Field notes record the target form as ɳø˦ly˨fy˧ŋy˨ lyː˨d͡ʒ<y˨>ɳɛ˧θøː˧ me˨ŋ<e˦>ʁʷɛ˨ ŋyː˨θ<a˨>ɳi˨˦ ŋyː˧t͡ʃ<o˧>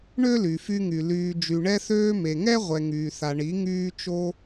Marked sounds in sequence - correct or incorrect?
correct, incorrect, correct, correct

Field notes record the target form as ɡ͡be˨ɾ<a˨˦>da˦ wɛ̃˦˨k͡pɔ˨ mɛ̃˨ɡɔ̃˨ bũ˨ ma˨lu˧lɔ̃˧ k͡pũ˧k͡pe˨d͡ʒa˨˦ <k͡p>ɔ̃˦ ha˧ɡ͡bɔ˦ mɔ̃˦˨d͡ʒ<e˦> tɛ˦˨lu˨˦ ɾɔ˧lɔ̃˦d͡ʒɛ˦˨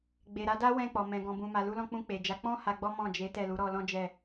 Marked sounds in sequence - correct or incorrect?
correct, correct, incorrect

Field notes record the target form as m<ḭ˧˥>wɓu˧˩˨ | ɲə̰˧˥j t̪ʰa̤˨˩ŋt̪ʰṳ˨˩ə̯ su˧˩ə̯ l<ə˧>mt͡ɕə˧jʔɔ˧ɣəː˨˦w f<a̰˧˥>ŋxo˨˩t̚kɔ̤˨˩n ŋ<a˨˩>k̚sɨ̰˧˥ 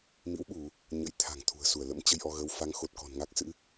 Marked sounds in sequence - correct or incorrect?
correct, incorrect, incorrect, incorrect

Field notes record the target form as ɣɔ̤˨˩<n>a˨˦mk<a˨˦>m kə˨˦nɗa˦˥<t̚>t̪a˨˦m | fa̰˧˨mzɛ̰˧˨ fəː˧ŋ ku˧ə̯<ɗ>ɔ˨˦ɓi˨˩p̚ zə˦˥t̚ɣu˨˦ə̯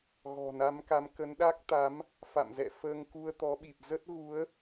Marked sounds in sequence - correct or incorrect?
correct, correct, incorrect, incorrect

